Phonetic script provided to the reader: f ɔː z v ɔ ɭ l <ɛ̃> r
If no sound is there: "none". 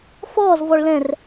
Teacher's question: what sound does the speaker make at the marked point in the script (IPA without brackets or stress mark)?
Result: ɛ̃